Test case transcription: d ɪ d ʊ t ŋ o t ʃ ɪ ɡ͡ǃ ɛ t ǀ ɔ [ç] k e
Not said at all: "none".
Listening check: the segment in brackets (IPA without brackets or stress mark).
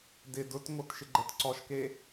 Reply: ʃ